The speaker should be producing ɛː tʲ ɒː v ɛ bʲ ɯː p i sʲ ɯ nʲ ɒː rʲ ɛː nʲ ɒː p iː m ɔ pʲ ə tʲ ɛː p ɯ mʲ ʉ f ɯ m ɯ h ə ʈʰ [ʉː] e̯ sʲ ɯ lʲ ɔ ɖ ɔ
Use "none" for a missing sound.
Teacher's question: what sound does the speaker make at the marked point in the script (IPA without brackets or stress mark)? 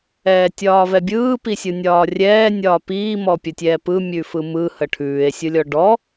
ʉː